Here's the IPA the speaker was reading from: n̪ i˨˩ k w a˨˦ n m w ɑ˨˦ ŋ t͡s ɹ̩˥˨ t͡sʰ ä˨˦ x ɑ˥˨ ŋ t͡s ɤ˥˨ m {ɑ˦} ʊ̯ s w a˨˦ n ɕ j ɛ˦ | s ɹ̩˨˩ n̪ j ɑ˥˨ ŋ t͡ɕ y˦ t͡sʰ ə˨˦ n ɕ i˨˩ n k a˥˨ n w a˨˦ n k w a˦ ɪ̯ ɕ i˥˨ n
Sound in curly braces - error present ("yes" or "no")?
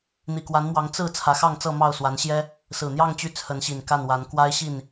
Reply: yes